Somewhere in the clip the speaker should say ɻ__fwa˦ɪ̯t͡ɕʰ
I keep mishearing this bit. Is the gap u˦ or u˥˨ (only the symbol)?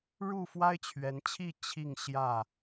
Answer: u˥˨